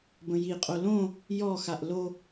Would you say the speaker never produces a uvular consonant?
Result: no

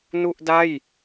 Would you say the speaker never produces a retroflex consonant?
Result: yes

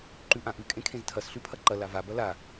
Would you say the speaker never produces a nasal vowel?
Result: no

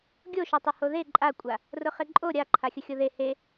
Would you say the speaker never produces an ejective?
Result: no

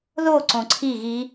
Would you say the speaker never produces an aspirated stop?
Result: no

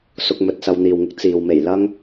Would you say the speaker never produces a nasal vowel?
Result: yes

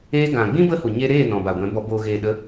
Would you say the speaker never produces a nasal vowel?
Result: no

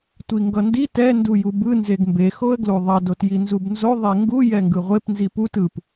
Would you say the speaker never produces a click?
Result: yes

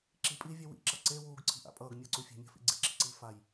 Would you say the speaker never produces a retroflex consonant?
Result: yes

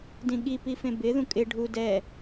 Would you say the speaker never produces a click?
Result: yes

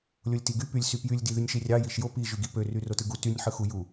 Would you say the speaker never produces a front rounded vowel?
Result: no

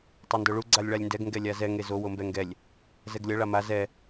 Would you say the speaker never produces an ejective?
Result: yes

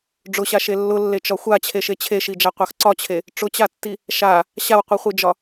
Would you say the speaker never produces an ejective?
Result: yes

